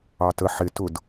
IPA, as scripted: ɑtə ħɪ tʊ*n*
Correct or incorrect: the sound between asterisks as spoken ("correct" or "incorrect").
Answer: incorrect